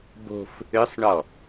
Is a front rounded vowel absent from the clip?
no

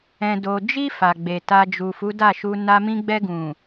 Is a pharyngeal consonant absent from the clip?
yes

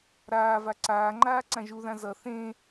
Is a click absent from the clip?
no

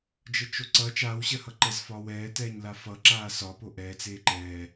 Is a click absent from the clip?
no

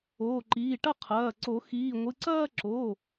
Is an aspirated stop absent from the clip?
no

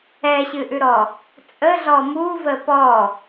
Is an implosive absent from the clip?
yes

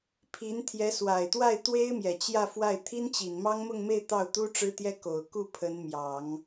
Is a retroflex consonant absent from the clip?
no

